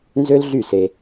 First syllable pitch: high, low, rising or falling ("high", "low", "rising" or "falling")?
high